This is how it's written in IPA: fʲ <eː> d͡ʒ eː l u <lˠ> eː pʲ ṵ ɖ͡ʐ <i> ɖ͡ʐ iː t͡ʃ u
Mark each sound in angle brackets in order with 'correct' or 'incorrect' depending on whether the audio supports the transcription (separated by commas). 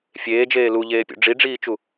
correct, incorrect, correct